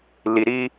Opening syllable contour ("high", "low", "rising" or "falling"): low